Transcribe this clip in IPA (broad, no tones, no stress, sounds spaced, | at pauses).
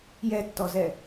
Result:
j ɛ tː ɔ z ɛ